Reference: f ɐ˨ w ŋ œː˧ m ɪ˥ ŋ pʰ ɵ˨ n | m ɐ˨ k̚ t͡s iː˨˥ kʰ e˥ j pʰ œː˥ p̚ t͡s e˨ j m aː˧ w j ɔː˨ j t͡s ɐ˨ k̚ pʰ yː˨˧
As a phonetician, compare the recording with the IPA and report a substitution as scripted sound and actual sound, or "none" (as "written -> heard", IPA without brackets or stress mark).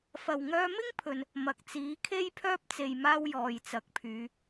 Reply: none